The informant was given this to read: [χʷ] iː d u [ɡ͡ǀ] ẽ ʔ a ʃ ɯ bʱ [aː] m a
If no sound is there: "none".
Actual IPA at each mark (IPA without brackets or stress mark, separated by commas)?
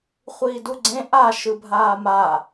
χʷ, ɡ͡ǀ, aː